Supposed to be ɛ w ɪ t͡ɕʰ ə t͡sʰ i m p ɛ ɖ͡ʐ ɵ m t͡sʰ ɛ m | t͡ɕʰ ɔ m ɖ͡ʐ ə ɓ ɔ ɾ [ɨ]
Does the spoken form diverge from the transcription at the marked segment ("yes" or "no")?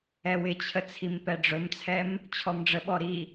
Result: yes